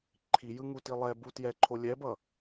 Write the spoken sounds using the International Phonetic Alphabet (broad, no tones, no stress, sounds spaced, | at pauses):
ǃʰ i j ɯ ŋ u t i lˠ ɛ b u t j ɛ ǃʰ o lʲ ɛ b ʌ